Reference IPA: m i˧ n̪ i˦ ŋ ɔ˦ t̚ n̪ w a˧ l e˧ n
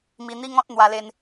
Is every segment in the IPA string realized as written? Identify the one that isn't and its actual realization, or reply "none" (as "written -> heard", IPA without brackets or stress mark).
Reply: ɔ˦ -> ɔ̃˦